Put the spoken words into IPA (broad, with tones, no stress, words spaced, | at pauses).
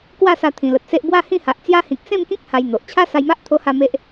kwa˥˧sa˧ t̪ʰĩ˨˩lə˨t̚se˦ʔ bwa˥˧hĩ˥˧ha˨ʔt͡sja˦ hĩ˦k̚ sẽ˥˧mkĩ˦k̚ ha˧jn̪o˨ʔ t͡ɕʰa˦sa˧jma˦ʔ t̪ʰo˦ha˥˧me˦ʔ